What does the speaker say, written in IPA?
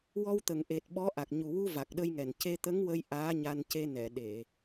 w ɔ˧ w t̪ ə˨˩ ŋ ʔ e˨˩ t̚ ɓ ɔ˧˥ ʔ a˨˩ k̚ ɲ u˨˩ w u˧ v a˨˩ k̚ ɗ ə˧ j ŋ ɛ˨˩ n c e˧ t̪ ə˧˥ ŋ w ə˧ j ʔ aː˧˥ ɲ a˧ n c e˧ n ɛ˨˩˨ ɗ e˨˩˨

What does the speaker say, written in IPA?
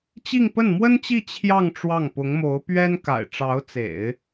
t͡ɕ i˥˧ ŋ p ə˥˩ n m w ə˥ n t͡ɕ i˥˧ t͡ɕʰ j ɑ˥˧ ŋ ʈ͡ʂ w ɑ˥˩ ŋ p ʊ˧˥ ŋ m o˧˥ ʊ̯ p ɥ ɛ˥ n k a̰˨˩ ɪ̯ ʈ͡ʂ ɑ˧˥ ʊ̯ t͡s ḛ˨˩˦ ɪ̯

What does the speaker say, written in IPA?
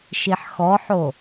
ʃ i ħ x ɔ ħ o

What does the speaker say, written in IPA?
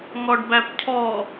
ŋ ɔ ɖ b æ p cʰ ɔ

